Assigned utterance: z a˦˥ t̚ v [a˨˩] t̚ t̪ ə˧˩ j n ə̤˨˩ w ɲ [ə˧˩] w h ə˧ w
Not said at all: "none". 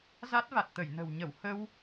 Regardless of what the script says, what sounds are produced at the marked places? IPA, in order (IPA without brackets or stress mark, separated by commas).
a˨˩, ə˧˩